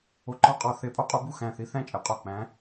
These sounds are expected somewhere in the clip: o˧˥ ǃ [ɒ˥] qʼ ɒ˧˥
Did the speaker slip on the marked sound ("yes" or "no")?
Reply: no